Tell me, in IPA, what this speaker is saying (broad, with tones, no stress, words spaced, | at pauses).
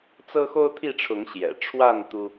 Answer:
t͡sɤ˦xo˦ʊ̯t̪ʰi˥˨ʈ͡ʂʰʊ˨˦ŋ ɕjɛ̰˨˩ ʈ͡ʂʰwa˥˨n t̪u˦